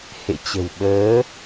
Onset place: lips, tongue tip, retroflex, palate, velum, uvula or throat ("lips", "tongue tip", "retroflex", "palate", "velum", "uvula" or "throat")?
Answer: throat